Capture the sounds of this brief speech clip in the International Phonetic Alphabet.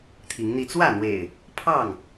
t̪ʰi˨˦ŋn̪i˧ t͡swä˥˨n̪wḛ˨˩ɪ̯ | pʰɑ˥˨ŋ

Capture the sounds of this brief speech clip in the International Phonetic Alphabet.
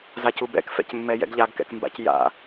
zacubɛ̰k fɛ̰cmːɛjɛ̰ɡʎaɡ kɛ̰kmba̰c ja̰

